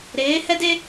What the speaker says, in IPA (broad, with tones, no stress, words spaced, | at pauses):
ɾeː˨˦hɛ˦de˦